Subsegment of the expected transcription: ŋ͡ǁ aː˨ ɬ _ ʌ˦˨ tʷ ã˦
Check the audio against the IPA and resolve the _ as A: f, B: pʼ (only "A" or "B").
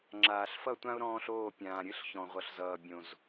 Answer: A